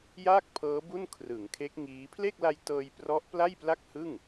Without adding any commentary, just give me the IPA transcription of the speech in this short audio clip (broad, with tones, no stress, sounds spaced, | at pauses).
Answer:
j aː˥˩ k̚ pʰ ɤː˦˥ b u˥˩ n kʰ r ɯ˩˦ ŋ kʰ e˦˥ k̚ ŋ iː˦˥ pʰ l e˥˩ k̚ l a˧ j t ɤː˧ j p r ɔ˦˥ ʔ p l a˥˩ j p l a˥˩ k̚ h ɯ˥˩ ŋ